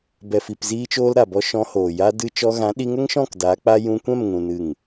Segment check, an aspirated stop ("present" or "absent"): absent